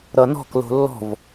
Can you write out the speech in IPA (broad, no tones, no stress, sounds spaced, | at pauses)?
ɾ ʌ n ɔ̤ k l o̤ lː ɔ̤ v